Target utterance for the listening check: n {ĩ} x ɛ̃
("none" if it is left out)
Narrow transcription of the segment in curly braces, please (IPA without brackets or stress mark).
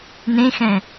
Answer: ẽ